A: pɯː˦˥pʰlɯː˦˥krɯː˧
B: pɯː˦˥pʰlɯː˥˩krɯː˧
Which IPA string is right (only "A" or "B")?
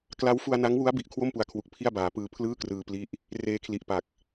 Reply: B